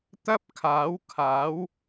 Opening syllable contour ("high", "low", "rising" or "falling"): high